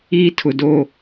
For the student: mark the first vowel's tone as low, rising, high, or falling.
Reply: high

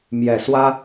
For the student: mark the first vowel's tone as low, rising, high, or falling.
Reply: low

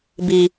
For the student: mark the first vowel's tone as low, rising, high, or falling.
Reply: low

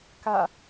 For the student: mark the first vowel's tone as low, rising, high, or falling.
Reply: falling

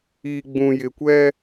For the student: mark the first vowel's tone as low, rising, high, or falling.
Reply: low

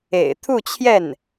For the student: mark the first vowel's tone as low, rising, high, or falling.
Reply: low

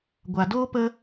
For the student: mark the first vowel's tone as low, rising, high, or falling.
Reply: low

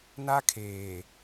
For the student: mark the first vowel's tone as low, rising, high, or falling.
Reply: high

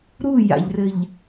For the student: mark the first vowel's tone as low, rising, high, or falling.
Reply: falling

